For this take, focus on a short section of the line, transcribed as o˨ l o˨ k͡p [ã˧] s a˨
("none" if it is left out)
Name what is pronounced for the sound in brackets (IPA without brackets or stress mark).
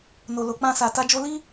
ã˧